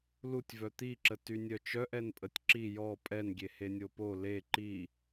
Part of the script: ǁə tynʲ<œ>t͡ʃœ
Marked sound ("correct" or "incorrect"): correct